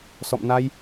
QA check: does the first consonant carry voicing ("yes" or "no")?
no